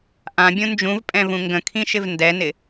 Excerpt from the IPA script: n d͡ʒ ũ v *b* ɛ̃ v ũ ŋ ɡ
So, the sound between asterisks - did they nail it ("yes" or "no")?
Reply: no